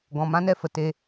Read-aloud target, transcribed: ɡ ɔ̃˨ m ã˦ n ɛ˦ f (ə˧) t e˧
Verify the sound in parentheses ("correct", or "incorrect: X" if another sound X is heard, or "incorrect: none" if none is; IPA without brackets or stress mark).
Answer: incorrect: ə˨